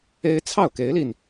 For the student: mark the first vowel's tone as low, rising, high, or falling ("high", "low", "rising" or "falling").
high